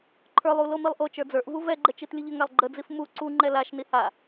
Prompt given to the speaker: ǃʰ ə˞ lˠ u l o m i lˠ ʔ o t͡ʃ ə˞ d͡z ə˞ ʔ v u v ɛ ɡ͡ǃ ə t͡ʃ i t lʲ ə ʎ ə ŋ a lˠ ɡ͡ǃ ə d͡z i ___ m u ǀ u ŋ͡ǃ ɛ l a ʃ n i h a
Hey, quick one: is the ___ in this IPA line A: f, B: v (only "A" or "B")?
A